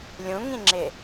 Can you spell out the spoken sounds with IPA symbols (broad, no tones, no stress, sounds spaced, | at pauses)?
lʲ ũ ŋ ĩ ŋ͡ǁ ɪ